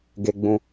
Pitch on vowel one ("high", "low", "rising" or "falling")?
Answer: low